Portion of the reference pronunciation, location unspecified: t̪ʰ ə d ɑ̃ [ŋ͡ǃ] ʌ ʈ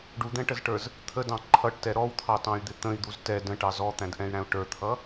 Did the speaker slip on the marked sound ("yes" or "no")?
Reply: yes